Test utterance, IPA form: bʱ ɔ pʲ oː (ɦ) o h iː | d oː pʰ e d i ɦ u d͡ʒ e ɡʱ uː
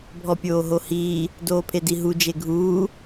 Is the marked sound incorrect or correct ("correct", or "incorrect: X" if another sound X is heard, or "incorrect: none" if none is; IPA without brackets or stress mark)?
correct